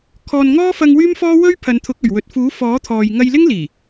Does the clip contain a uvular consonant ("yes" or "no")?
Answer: no